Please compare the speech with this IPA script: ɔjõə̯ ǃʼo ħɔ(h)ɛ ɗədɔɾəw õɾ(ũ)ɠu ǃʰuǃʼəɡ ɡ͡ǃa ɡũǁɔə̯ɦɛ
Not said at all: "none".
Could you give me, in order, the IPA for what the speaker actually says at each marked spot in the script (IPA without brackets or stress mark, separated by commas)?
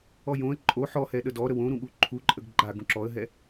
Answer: h, ũ